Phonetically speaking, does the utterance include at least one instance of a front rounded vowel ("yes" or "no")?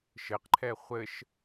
no